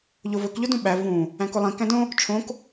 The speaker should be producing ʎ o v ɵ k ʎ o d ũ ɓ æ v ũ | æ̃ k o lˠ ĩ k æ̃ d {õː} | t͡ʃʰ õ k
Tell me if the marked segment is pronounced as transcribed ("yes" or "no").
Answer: no